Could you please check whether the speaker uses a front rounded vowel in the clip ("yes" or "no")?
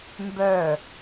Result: yes